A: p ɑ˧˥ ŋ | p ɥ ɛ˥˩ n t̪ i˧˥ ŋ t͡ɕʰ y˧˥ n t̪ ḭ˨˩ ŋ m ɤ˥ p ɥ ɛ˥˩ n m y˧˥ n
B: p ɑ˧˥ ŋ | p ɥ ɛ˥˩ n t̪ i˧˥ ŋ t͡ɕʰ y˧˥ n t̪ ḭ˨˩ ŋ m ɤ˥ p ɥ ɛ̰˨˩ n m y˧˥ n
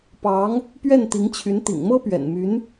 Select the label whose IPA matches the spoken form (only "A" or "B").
B